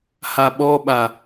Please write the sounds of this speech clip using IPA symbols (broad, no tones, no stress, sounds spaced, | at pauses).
h a ɓ ɔ ɓ a